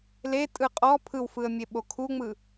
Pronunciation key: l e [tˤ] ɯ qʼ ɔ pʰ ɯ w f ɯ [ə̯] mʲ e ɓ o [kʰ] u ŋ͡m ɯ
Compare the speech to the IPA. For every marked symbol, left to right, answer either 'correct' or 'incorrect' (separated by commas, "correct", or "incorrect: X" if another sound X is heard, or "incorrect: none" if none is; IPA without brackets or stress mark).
incorrect: tʼ, correct, correct